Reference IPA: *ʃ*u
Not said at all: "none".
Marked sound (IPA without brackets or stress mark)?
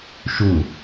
ʃ